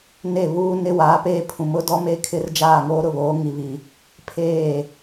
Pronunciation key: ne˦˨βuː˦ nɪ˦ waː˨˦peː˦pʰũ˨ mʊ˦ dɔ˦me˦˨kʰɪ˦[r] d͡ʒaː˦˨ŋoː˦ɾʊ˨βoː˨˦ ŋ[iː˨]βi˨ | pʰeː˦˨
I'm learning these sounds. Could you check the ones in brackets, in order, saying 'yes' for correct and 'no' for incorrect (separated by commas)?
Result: yes, no